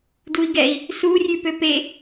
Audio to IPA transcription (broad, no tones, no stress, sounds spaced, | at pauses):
d u i̯ ɡ ɛ i̯ | s u rʲ ʉ p ø p e